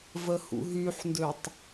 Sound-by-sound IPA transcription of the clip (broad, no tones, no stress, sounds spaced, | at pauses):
v ə h ṵ ɦ y ħ n d ø tˤ